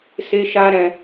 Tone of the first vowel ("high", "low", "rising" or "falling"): high